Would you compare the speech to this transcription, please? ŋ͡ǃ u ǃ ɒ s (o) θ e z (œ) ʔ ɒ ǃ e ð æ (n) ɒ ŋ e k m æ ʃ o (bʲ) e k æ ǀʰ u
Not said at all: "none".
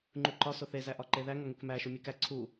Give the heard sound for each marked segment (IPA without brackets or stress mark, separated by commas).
o, æ, ŋ, mʲ